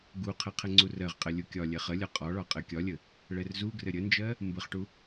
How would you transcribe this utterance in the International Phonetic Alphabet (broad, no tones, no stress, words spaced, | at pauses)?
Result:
ɡuqʰɘ qʰɘŋ͡ǀurɜʁqʼɘ lʲukʲɒlʲɛ χəlʲɒ qʼɒɭɒ qʼɘ kʲɒlʲə | ɭɛrzuɡrɘ ɾʲənd͡ʒɜ | mbəχʈu